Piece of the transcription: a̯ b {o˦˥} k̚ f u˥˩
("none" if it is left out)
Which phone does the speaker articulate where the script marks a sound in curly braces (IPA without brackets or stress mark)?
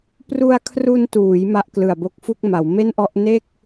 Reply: o˦˥